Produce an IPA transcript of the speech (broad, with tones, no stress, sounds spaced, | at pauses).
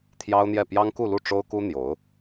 t̪ʰ j ɑ˥ ʊ̯ n̪ j ɛ˥˩ p j ɑ˥ ŋ k u˥˧ l u˥˩ ʈ͡ʂ o˥ ʊ̯ k u˥ n̪ j o˧˥ ʊ̯